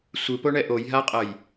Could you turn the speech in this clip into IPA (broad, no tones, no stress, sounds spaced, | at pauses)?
sʷ ɯ p o ɳ ɛ ʔ o j ɦ a qʼ ʌ j